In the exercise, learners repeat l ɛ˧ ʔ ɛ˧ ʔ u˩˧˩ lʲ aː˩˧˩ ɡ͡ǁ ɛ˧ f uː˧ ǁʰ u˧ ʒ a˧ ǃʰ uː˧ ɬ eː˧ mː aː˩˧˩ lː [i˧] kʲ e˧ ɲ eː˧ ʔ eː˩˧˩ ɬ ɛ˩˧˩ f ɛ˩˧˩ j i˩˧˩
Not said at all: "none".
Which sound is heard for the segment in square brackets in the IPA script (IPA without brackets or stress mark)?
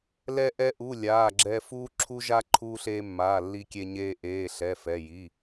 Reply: i˧